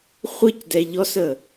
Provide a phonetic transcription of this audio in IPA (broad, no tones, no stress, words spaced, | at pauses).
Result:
χʷəc dɛʎɔsə